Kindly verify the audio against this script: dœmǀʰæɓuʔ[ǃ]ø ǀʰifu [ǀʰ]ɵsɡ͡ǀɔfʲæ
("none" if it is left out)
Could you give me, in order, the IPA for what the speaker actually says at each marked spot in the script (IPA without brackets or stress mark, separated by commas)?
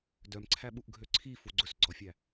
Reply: ɡʱ, ɡ͡ǀ